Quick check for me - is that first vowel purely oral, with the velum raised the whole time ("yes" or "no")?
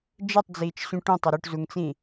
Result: yes